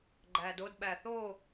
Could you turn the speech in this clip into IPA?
ɡ͡ǃædod ɓæθo

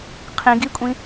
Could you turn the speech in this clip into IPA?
qʰĩɡikʷʼĩ

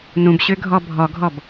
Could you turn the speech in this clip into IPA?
nũbɕøɡʱɔ bʱɔɡʱɔb

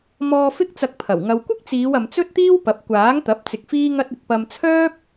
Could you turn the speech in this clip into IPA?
mɔː˧ fɪ˥k̚t͡sɐ˧k̚pʰɐ˨˩w ŋɐ˨wkʷɪ˥k̚t͡siː˨˧wɐ˨m t͡sɵ˥t̚t̪iː˥wpɐ˨p̚ kʷaː˨˥ŋt̪ɐ˨˥p̚ t͡sɪ˧k̚fiː˥ŋɐ˥t̚ɪ˧k̚ pɐ˧mt͡sʰœː˥p̚

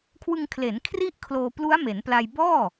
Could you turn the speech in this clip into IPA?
kʰwɯ˧ŋkʰle˩˦n kʰri˥˩ʔkʰloː˧ plu˦˥a̯me˩˦npla˧j bɔː˥˩

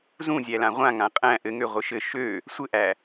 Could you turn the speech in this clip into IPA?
zũzʲælã ʁʷãŋã qʼæ̃ ʔɘŋøʁʷɘ ʃɘ ʃø | sʷɘʔæ

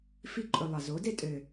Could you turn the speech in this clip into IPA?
fi˧ǃʼɵ˨ lˠɑ˨zo˨˦de˦ tʼø˨

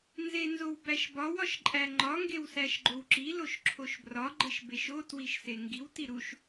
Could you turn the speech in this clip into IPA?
nzenzowbæʃbɒw ɒʃǃʼæŋ͡ǃɒ ŋɡewsæʃɡ͡ǃowǁi loʃǁʰoʃbrɒ ɡ͡ǃeʃbeʃo twiʃseŋɡiw tiɾuʃ

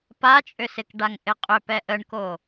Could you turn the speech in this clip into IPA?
pat͡ʃʼʏsɪkɖaŋ ʔɪqʼʏ pɛʔəɳko

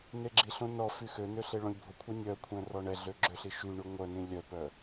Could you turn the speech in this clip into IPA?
neɡ͡ǁiɬõ nɔ fyxønø ɬeɭõlʲbʱokʷʰœ nʲœkʷʰɛ̃ rɔɳɛɮø ɡ͡ǁøɬi ʃyɳy ŋʷœnĩ lʲœpœ

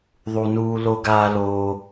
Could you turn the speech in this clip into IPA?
ðˤu˨nuː˧ lo˧ɡaː˧ loː˧

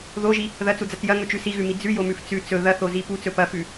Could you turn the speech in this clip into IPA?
ðoʒi | ðɐt͡sud͡zɐt͡s jɐŋɵt͡ʃʉ siɣʉmi d͡zʉjomʉf t͡sʉ t͡sɵ ðɐθozi put͡sɵ pɐfʉ

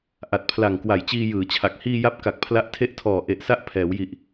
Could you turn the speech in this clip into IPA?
ʔa˨˩t̚pʰla˨˩ŋ kwa˨˩jt͡ɕiː˧jɯː˩˦t͡ɕʰa˨˩k̚ hiː˧ja˦˥p̚ ka˨˩k̚pʰla˦˥ʔtʰe˥˩ʔtʰɔː˨˩ ʔe˨˩ʔsa˦˥ʔ pʰɛː˩˦wji˨˩ʔ

